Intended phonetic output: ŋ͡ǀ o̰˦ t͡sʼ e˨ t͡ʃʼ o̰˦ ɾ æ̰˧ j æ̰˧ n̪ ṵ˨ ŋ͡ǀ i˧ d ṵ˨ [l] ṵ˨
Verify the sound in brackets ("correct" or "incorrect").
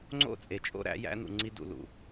correct